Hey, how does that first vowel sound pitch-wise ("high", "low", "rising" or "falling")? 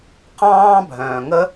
high